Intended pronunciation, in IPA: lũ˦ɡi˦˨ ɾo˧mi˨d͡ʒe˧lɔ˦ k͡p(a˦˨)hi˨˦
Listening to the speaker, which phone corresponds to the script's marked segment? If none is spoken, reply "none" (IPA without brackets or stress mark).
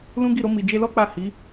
a˦˨